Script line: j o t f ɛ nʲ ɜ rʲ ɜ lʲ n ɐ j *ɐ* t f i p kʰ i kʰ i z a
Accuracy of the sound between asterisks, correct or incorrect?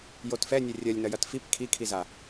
correct